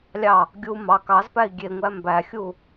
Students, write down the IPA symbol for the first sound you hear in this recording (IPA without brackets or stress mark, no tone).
lʲ